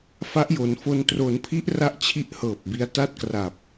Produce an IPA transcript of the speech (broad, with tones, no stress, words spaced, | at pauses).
fa˦˥ʔjo˩˦nfo˧n tro˩˦npʰi˦˥ʔ ra˥˩ʔt͡ɕʰi˥˩ʔhɤː˨˩p̚bi˦˥a̯ ta˥˩t̚kra˨˩p̚